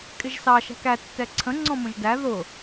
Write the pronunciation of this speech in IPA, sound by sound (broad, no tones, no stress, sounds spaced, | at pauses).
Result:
kʼ ɪ ʒ s ɑ ʃ æ̤ k æ tː ɛ ǀʰ ə̃ ŋ͡ǀ ɔ̃ m ə̃ ʒ d æ ð ʊ